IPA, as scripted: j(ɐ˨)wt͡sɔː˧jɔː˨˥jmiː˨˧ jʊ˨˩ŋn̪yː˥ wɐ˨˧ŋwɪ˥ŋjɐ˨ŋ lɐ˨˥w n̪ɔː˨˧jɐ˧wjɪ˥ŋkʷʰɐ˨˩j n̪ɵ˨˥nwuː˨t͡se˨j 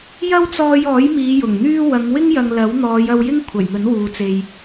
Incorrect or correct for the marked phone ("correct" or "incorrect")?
incorrect